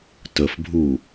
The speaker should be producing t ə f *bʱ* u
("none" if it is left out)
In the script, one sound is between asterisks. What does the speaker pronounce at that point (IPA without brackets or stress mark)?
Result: bʱ